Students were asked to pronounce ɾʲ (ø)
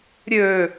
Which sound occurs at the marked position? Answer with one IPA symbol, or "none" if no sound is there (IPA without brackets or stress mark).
ø